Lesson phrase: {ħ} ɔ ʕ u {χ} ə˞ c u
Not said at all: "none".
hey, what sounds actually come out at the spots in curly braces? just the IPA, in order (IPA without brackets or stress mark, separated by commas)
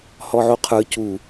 h, qʰ